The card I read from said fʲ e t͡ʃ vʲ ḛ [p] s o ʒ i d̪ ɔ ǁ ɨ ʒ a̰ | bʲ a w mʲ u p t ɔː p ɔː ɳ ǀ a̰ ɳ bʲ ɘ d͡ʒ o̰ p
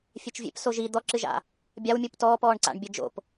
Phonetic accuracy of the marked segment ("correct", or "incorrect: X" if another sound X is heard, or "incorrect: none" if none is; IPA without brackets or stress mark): correct